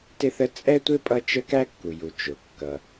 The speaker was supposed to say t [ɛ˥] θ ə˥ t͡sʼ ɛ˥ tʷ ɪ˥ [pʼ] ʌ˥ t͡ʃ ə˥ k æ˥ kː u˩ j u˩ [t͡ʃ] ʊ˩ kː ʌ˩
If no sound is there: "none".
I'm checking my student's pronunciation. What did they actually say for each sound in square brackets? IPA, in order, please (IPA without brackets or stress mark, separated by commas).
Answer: ɪ˥, pʼ, t͡ʃ